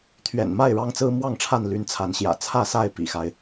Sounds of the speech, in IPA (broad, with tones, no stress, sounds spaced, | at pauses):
t̪ʰ ɥ ɛ̰˨˩ n m a˥˨ ɪ̯ ɻ ɑ˦ ŋ t͡s ɹ̩˦ m w ɑ˥˨ ŋ ʈ͡ʂʰ a˥˨ n l y˨˦ n t͡sʰ a˨˦ n ɕ j ä̰˨˩ t͡sʰ ä˥˨ s a˥˨ ɪ̯ p ḭ˨˩ x a˦ ɪ̯